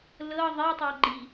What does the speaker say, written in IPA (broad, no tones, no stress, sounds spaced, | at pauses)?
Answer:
l ɤ ðˤ e tˤ ɑ ɡ͡ǃ i